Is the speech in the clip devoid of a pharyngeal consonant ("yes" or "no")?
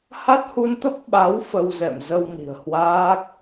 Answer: yes